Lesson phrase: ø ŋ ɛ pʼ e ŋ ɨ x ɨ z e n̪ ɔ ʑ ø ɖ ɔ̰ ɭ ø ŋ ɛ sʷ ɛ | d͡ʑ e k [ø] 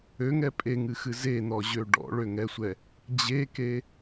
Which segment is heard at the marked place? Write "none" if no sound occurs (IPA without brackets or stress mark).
e